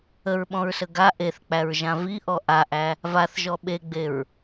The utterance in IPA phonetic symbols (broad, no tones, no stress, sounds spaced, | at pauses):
ə ɹ ɓ ɔ̃ ɹ s ə ɡ a ʔ e θ k͡p æ ɹ ʒ ã v i ʔ ɔ ʔ a ʔ æ | v a θ ʒ ɔ ɓ e ɡ͡b e ɹ